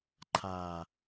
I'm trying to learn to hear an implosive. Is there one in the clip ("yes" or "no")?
no